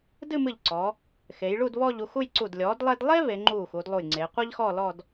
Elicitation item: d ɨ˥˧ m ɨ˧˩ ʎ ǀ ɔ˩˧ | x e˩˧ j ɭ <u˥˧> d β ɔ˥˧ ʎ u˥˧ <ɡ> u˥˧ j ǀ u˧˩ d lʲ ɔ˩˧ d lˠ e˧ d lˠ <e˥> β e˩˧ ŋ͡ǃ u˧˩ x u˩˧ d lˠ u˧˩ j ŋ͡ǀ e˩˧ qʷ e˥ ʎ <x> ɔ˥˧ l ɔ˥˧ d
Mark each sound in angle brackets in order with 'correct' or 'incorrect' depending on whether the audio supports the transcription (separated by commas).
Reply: correct, incorrect, correct, correct